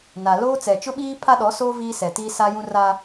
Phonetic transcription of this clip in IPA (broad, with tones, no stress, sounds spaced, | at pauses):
n a˨ l oː˦ t͡s ɛ˨ t͡ʃ ʊ˦ ɓ iː˦ pʰ a˦ ɗ ɔ˨˦ s oː˦ v iː˦ s ɛ˨ t iː˦ s a˦ j ũ˦ r a˦